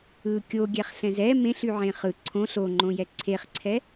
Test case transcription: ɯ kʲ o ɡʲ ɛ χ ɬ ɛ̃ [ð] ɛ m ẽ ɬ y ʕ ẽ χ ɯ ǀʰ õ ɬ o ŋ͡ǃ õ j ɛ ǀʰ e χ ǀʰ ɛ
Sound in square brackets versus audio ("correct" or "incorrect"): incorrect